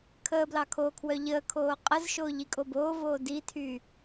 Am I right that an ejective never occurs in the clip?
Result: no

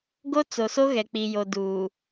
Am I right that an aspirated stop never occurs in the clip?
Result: yes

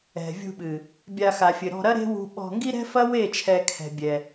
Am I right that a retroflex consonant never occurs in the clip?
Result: yes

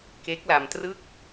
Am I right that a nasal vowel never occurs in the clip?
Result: yes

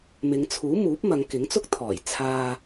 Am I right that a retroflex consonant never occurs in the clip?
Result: yes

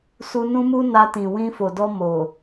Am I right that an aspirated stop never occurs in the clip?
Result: yes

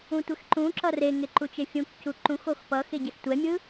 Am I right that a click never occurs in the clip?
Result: no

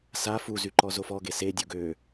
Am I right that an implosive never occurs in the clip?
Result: yes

